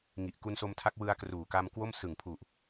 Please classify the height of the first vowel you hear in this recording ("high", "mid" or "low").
high